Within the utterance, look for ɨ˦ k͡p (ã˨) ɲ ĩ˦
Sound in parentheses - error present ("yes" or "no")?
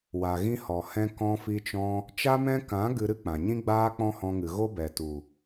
no